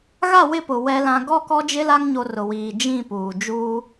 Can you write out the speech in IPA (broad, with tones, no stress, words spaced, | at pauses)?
ɣa˦˨wɪ˦˨pʊ˨ wɛ˦lã˦ ɡɔ˦˨kɔ˦d͡ʒɪ˦la˦ŋ ɲo˦rʊ˨wiː˨ d͡ʒĩ˦˨puː˨ d͡ʒuː˦